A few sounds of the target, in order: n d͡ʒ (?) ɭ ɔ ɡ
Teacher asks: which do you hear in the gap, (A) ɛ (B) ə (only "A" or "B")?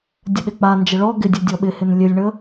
B